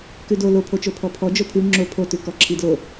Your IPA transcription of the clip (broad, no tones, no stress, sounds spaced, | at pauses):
k ʉ d o l o pʰ o t͡ʃ o pʰ ɔ pʰ ɔ d͡ʒ o pʰ ʉ ŋ͡ǁ o pʰ o t ʉ k ɔ ǁʰ i d l o